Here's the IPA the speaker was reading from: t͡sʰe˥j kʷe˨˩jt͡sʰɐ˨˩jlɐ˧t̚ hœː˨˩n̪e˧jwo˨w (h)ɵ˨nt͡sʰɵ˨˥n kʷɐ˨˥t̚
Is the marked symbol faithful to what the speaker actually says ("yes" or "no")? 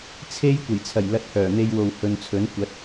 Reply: yes